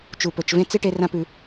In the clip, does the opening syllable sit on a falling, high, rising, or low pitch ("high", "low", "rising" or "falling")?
low